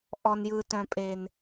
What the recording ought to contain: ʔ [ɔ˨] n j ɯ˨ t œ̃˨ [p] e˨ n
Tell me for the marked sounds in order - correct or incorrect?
correct, incorrect: pʼ

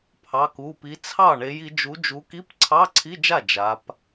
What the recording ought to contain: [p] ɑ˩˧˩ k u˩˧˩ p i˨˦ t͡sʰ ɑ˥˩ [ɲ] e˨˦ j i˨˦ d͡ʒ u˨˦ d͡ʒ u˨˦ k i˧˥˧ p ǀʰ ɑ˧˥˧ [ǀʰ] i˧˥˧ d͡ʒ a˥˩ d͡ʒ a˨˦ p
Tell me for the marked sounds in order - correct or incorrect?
incorrect: pʰ, incorrect: ɳ, correct

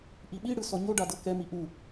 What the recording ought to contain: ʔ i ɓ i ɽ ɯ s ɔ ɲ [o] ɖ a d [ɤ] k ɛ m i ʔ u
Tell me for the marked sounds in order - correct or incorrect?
correct, correct

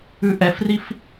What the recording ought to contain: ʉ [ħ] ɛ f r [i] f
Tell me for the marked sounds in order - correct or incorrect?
incorrect: ʔ, correct

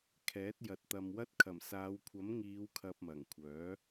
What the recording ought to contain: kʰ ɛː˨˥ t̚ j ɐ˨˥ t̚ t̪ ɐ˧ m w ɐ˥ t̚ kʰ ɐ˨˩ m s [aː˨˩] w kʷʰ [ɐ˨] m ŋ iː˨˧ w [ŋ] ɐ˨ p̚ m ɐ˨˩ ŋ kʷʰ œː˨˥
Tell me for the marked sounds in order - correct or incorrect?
incorrect: aː˨˧, incorrect: ɐ˨˥, incorrect: kʰ

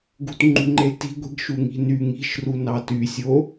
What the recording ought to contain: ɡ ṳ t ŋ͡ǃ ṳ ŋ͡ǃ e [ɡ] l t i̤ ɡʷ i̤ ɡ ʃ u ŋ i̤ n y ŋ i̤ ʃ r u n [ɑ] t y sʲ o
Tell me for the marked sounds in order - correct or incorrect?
incorrect: none, correct

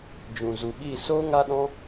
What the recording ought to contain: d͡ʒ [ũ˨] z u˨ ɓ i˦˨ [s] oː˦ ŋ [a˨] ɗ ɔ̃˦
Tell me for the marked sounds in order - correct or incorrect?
correct, correct, incorrect: a˦

